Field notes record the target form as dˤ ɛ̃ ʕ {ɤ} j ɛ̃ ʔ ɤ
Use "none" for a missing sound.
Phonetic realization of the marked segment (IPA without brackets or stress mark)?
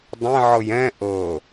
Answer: ɤ